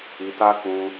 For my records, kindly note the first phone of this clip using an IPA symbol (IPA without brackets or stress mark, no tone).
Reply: i